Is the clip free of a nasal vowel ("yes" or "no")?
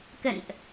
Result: yes